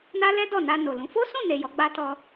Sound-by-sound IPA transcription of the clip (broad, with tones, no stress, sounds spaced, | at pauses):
n a˦ l ɛ˦ d ɔ˦˨ n a˧ n o˨ l ũ˨˦ f o˦ s ũ˦˨ n e˨ j ɔ˨˦ ɡ͡b a˦ t ɔ˧